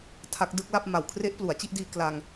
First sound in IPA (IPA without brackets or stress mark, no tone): tʰ